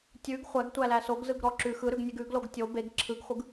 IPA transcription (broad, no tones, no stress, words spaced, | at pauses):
tʲʉɡ χʷæɡtʷælæ soɡzɯɡɾɔ ǁʉ xɯɾʉɡnʲeɡ ʉɡloɡ tʲo beɡ ǁʰɯɡχʷɯɡ